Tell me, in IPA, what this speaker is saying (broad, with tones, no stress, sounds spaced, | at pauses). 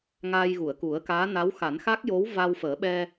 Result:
ŋ aː˧ j ɣ u˨˩˨ ə̯ k u˨˩˦ ə̯ k aː˧˥ n a˧˥ w x a˨˩˦ n x a˦˥ k̚ j o˧˥ w v a˧ w f əː˨˩˦ ɓ ɛ˧